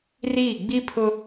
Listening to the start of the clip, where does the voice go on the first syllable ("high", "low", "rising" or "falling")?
falling